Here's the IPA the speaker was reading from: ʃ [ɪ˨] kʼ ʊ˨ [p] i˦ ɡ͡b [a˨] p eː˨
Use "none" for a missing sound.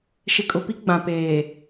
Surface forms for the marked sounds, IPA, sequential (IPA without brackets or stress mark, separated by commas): ɪ˨, p, ã˨